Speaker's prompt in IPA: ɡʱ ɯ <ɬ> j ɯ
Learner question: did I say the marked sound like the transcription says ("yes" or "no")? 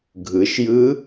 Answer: no